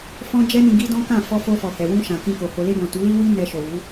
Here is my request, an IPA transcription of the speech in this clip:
fɔ̃˦ d͡ʒɛ˦nĩ˧ɡi˦dɔ̃˦ kã˦˨ fɔ˧fo˧fɔ˨ hɛ˨wũ˧ʃã˨ kĩ˧ko˨ ho˨le˧bɔ̃˨ tu˨˦li˦wi˦ nɛ˧ʃo˨ wu˨˦

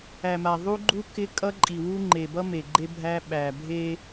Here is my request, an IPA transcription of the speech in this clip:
æ˨ma˨ ðˤu˦ɡ͡ǃu˦ kɪ˦kʼʌ˦ǃʼi˨wu˦ ŋ͡ǃe˨bʌ˦me˨ ɡ͡ǃe˦bʱæ˦ ɓæ˨bʱe˦

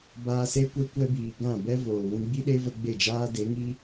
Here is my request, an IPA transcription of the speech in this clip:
baː˧se˦ kʷɛ˧kʷɛ˧biː˨ ɡã˦˨bɛ˦ voː˨ wũ˧ɡ͡bi˦ɗe˦və˧ ɡ͡be˦˨d͡ʒaː˦de˨˦ ŋi˦

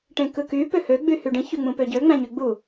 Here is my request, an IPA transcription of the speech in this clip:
ʈẽkɯky pøhø ɡ͡byhyɖĩ çyŋ͡mũpøɟø ŋ͡mæ̃ɲyɡ͡bu

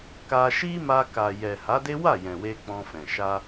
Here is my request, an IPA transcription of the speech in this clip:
ka˧ʃi˦ma˧ ka˨jɛ˨ ha˨˦de˦ wa˦˨jɛ̃˨we˧ k͡pɔ̃˧fɛ̃˨ ʃa˧

